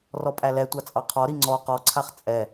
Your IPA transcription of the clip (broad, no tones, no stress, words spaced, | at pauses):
rɔpʼælɛtʷɑ t͡sʼɑqʰɔɾi ŋ͡ǀɔ qɔǀʰaχ t͡sʼɛ